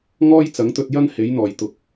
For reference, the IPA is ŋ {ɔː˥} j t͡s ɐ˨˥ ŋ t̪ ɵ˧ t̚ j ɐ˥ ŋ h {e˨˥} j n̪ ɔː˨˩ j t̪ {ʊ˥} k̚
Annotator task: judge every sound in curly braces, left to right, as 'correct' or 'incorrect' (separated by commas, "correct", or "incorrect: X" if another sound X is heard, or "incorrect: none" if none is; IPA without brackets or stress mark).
correct, correct, incorrect: ʊ˨